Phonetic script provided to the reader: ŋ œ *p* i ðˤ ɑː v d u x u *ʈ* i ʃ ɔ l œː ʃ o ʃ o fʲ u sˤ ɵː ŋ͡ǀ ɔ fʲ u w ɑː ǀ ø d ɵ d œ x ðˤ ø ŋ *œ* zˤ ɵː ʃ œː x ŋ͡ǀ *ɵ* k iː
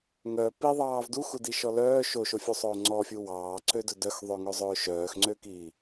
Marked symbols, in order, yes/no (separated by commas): yes, no, no, no